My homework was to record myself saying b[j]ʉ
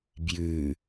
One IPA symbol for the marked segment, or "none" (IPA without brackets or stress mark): j